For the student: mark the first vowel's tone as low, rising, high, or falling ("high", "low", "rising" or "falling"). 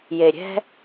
low